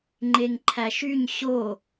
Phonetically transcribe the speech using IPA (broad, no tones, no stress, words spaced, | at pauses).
ŋ͡ǃeŋǃʰæʃyɲ ɕo